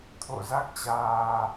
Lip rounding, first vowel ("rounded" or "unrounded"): rounded